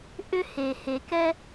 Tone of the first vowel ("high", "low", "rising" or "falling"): high